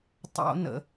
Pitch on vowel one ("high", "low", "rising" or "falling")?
high